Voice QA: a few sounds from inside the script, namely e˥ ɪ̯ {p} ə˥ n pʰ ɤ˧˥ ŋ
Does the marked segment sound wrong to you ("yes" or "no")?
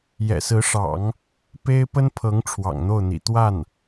no